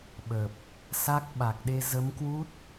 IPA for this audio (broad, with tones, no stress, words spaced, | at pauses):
ɓə˨˩p̚ | sa˦˥k̚ɓa˨˩k̚ɗe˧ zə˨˦mkwu˦˥t̚